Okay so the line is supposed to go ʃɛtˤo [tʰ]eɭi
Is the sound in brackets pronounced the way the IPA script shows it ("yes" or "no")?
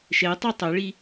no